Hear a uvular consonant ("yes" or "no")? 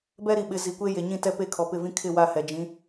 no